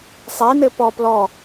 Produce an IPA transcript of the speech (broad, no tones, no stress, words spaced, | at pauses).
sˤenɘ pɔ plɔ